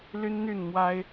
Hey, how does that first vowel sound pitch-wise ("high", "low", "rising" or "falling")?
high